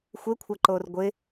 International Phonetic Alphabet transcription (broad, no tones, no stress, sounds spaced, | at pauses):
xʷ e kʷʰ a ǃ oː r ɡʷ ɪ